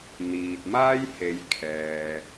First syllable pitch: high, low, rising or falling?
low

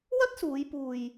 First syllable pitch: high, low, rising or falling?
high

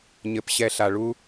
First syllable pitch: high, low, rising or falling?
low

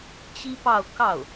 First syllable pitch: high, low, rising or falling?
high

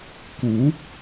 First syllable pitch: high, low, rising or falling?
rising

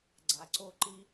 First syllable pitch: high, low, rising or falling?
low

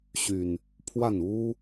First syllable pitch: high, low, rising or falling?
low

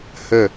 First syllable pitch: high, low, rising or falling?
falling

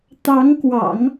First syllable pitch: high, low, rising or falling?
rising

